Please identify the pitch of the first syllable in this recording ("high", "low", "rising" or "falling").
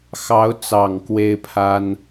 rising